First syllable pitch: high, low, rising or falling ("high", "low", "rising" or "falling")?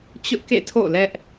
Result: high